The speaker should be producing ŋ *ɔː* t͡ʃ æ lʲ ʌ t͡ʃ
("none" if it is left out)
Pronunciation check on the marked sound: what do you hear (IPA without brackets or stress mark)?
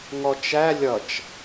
ɔ